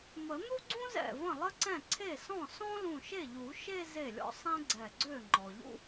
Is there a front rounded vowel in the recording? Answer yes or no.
yes